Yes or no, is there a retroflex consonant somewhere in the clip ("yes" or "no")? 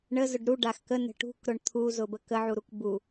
yes